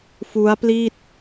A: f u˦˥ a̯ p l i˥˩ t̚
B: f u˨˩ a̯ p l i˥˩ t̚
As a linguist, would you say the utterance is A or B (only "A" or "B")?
A